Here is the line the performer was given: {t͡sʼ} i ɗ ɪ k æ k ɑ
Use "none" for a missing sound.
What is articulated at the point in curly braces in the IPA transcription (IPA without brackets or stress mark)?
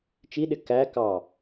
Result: t͡ʃ